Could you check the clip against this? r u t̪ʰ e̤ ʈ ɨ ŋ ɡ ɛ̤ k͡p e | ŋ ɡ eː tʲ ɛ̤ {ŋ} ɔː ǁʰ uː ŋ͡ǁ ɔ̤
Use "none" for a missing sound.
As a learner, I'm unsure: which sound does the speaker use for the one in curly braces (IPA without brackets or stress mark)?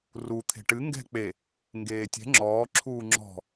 ŋ͡ǁ